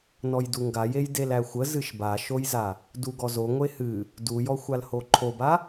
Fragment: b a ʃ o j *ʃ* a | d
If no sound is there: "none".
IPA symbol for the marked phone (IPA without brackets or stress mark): z